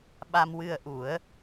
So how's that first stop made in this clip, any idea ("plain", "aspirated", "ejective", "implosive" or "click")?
implosive